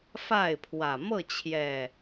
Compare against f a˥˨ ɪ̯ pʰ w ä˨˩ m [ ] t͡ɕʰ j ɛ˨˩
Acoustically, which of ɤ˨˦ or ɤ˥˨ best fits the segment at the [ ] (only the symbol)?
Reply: ɤ˥˨